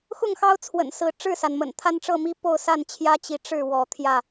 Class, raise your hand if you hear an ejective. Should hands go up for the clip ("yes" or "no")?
no